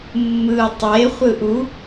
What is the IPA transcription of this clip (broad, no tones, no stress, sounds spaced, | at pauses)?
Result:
mː ɯ tˤ e χʷ ɯ ʔ u